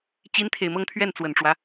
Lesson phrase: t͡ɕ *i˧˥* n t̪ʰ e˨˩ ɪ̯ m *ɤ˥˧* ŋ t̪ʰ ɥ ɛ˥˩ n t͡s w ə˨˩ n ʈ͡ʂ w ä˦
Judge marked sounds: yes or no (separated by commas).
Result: yes, yes